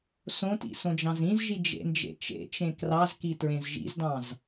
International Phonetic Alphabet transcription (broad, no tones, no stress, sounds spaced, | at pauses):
s õ t ḭ s õ d͡ʒ ɑ̃ z ĩ z ʒ i d͡ʒ ḛ n d͡ʒ ḛ t͡ʃ ḛ t͡ʃ ẽ k r ɑ z k i t ɹ ẽ z ʒ ḭ z d ɑ̃ z